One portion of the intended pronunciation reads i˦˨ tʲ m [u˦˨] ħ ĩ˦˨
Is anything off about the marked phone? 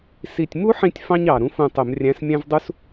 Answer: yes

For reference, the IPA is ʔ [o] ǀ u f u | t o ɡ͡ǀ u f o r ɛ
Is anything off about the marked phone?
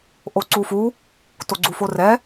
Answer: no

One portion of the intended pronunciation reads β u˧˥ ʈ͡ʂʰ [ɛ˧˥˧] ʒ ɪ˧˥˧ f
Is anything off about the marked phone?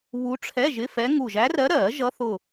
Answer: no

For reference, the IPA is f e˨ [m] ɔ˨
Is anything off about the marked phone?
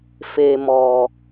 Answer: no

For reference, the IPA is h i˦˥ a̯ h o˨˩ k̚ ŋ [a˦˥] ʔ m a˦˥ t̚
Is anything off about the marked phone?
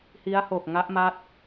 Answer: no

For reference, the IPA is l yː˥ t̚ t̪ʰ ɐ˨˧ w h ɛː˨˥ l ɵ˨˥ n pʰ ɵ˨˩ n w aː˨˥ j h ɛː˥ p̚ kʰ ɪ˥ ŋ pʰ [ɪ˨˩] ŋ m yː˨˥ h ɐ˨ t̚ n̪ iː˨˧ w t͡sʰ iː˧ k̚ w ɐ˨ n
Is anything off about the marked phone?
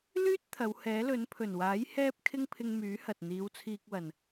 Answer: yes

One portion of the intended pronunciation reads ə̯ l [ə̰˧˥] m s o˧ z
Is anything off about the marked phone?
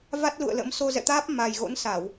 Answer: no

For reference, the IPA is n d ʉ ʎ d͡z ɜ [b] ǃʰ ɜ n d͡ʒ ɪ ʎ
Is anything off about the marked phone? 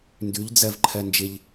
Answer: yes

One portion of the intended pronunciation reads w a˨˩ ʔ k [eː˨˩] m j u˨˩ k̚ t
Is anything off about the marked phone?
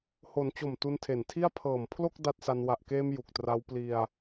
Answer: yes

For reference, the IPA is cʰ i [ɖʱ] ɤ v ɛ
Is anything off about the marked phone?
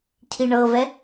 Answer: yes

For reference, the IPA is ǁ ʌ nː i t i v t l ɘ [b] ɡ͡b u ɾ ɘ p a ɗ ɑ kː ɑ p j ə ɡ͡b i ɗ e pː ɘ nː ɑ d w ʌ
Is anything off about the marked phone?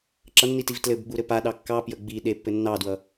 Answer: no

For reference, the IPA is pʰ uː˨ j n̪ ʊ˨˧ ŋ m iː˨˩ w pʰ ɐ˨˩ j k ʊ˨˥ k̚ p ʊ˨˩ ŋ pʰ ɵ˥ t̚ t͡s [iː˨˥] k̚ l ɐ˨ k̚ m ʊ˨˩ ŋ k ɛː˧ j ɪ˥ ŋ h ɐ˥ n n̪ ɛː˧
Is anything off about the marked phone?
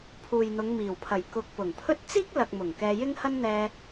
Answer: yes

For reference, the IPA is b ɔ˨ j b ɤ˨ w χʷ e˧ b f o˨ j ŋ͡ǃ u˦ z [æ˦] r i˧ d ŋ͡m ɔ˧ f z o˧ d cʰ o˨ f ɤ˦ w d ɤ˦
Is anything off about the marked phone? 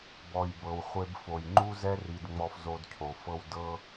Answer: yes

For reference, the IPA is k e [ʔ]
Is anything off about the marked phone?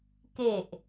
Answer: no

